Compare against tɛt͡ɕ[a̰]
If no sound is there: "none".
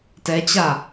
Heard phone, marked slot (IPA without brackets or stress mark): a